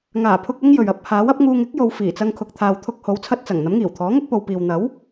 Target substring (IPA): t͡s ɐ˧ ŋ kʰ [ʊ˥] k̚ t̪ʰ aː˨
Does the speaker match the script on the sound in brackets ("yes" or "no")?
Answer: no